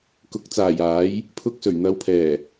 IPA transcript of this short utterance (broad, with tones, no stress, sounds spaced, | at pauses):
k ʊ˨ k̚ t͡s aː˨˩ j aː˨˥ j | pʰ ʊ˧ k̚ s ɵ˨˩ ɥ n̪ ɐ˨˧ w pʰ ɛː˨˩